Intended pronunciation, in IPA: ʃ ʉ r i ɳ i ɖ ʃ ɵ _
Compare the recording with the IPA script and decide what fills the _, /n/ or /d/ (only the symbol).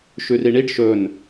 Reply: n